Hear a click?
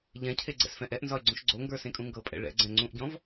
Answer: yes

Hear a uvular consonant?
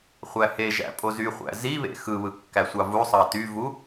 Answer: yes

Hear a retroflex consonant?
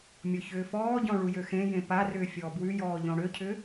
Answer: yes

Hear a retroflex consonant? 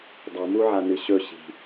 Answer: no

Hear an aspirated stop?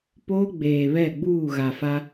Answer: no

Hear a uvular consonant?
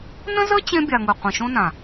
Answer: yes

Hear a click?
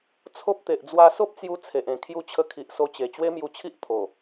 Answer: no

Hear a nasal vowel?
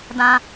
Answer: yes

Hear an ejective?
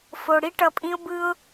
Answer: yes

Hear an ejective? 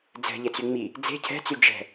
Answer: no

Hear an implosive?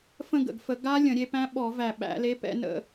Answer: yes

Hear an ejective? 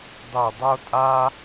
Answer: yes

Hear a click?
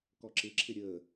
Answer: yes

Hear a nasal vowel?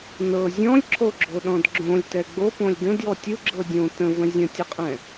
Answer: yes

